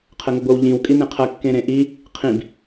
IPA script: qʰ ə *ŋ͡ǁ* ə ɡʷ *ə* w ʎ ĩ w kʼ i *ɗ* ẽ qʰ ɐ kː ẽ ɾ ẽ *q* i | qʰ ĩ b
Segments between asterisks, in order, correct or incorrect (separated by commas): incorrect, correct, incorrect, incorrect